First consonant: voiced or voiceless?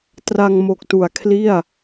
voiceless